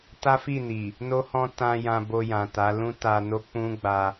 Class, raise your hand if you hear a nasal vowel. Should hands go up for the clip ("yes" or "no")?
yes